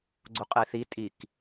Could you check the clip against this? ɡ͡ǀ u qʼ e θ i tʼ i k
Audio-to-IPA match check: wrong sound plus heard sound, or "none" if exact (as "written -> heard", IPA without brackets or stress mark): none